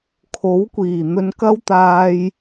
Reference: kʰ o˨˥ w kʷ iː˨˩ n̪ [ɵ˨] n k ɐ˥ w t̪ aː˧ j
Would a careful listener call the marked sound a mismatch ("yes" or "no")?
yes